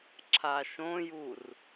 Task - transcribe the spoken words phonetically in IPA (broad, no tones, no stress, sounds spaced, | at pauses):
ǁʰ a ʃ õ j u r